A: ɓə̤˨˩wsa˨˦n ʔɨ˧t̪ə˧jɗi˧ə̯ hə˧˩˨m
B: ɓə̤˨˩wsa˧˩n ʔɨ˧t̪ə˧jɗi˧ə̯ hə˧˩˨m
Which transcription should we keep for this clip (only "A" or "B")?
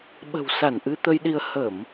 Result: B